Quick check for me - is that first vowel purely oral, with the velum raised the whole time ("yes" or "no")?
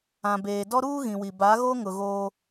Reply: no